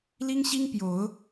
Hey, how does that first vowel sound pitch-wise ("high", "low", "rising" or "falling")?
high